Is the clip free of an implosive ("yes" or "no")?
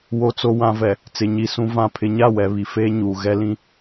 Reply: yes